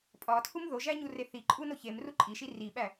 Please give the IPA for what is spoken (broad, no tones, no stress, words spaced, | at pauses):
pʼɒtʰum ðoʒæɲure θi ǃʼunoçem ruǃʼiʃi riɓæ